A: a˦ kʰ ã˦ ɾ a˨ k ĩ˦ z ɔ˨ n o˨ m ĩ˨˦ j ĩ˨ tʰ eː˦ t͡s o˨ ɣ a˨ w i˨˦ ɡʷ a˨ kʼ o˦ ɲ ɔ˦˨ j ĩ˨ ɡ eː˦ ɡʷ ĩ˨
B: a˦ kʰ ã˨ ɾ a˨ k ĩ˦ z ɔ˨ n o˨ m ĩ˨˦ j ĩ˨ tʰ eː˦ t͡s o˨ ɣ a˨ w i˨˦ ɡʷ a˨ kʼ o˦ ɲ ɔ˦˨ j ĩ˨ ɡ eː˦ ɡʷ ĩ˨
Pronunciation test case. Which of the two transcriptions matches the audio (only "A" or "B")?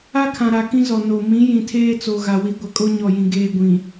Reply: B